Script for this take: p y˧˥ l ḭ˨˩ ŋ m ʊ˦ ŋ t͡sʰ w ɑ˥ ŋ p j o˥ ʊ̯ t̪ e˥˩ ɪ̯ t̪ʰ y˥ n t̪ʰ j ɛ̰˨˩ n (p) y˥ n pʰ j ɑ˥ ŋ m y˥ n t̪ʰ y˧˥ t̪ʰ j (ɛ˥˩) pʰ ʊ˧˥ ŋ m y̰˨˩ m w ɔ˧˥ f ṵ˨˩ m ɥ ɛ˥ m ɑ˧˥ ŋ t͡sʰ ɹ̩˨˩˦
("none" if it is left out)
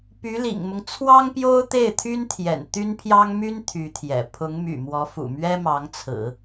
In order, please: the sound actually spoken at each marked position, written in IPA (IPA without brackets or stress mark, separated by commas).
t̪, ɛ̰˨˩